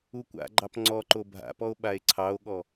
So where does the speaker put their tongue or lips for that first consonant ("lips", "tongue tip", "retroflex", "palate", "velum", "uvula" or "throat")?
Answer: velum